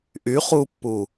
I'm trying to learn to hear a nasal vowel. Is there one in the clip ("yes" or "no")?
no